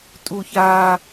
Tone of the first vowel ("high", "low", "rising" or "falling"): low